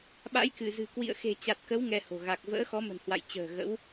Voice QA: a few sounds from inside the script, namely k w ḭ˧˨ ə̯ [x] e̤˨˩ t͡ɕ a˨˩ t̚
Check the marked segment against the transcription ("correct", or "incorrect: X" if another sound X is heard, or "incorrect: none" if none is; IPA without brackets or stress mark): correct